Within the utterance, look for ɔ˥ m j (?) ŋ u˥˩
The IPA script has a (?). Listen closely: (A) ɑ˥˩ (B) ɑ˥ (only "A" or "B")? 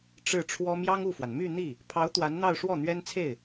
B